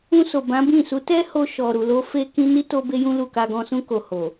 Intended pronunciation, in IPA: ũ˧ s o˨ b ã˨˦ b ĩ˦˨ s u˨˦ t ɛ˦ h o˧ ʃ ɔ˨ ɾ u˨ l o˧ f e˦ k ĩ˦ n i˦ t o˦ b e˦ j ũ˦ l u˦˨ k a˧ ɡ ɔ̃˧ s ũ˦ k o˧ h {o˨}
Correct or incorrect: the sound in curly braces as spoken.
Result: correct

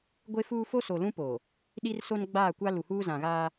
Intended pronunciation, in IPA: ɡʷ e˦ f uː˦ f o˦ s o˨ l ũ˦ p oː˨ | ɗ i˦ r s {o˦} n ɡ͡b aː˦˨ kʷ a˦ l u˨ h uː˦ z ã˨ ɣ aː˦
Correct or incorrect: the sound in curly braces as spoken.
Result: correct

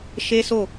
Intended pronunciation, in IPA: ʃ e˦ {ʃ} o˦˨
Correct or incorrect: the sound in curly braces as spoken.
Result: incorrect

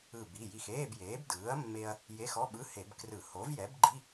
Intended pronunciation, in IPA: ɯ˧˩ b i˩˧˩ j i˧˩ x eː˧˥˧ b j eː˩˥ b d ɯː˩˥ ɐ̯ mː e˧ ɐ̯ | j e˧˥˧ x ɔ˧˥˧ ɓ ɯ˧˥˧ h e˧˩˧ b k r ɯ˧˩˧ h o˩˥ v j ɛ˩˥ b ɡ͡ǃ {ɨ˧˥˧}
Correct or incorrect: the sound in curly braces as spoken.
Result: incorrect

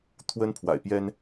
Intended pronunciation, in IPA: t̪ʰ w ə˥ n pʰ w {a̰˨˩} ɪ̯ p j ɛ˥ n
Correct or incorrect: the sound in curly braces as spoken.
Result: correct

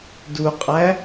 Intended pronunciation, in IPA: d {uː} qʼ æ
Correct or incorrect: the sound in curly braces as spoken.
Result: incorrect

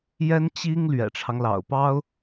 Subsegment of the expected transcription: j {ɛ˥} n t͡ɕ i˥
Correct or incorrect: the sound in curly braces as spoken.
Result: correct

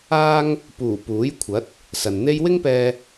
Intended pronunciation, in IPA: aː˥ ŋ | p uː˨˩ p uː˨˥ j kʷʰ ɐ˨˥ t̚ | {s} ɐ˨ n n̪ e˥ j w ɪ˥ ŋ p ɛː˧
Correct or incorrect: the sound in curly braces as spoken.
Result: correct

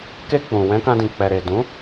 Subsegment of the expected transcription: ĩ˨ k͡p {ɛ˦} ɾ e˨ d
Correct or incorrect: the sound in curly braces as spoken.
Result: incorrect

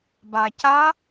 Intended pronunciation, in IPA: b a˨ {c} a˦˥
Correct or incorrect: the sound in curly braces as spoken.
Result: correct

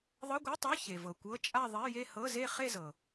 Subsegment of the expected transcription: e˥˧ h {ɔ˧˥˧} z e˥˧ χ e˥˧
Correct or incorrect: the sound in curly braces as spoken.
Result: incorrect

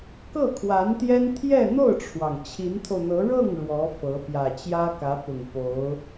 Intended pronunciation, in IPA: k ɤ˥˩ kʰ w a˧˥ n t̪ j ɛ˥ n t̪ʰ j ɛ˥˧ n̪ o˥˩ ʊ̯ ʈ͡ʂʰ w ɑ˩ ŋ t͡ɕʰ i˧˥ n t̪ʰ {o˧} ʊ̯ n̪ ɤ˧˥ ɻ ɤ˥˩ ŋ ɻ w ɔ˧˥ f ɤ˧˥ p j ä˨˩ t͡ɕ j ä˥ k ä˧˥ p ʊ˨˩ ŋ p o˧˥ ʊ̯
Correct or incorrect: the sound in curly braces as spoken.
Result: correct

